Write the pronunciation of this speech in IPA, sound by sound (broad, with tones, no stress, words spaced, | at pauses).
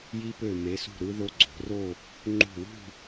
ji˧pø˧˩ me˩˧sṳ˧˩ɾɯ˧ ðo˧ɡ͡ǀo̤˩˧ro˥˧ | ŋ͡ǃṳ˧˩wṳ˥˧